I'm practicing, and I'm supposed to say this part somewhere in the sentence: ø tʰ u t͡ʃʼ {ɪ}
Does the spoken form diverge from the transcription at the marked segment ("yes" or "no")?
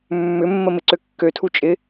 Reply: no